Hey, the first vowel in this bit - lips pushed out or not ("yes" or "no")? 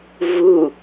yes